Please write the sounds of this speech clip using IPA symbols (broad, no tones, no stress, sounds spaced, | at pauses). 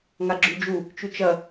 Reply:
ŋ a ɡ͡ǁ ʉ d͡ʒ u | t͡ʃ ʉ t͡ʃ ɐ